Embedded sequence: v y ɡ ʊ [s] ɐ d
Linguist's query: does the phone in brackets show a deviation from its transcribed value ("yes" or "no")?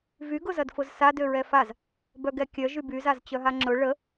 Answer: yes